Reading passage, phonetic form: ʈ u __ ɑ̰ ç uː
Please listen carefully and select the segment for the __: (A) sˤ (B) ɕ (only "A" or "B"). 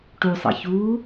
A